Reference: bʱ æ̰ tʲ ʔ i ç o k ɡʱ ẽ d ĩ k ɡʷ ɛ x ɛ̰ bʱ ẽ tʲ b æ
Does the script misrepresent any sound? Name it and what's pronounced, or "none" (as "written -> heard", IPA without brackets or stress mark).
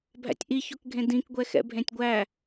b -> ɡʷ